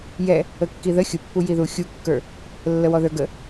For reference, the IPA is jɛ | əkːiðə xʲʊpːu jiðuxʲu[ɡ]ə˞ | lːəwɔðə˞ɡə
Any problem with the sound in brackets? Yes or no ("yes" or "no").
yes